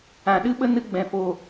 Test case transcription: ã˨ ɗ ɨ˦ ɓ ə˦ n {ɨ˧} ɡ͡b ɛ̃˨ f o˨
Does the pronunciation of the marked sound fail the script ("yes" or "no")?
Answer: no